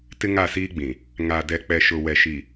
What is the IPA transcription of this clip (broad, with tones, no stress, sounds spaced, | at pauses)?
t ɪ˦ ŋ a˦˨ s iː˦ ɡ͡b ĩ˨ | ŋ a˨ d ɛ˨ k͡p ɛ˨ ʃ ʊ˨ w ɛ˨ ʃ i˨